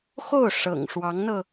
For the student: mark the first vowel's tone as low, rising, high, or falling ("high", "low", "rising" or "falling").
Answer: falling